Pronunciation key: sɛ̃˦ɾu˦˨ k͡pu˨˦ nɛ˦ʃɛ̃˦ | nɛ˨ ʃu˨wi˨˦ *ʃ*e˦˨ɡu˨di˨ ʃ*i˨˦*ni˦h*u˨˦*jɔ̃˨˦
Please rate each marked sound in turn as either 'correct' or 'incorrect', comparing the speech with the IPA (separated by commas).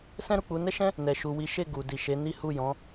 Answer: correct, incorrect, incorrect